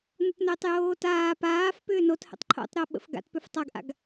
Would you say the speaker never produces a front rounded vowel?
no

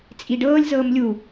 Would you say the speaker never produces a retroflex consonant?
no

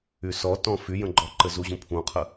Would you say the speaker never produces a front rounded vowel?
no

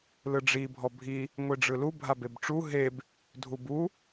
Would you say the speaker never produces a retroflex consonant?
no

